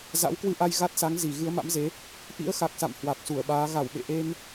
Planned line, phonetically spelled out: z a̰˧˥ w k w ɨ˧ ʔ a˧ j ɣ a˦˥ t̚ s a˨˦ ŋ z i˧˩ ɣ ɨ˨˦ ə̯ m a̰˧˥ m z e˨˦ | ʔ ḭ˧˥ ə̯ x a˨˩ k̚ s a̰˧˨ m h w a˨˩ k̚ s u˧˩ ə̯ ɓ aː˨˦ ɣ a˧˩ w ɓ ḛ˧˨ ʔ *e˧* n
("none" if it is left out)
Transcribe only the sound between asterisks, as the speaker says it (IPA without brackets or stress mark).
e˧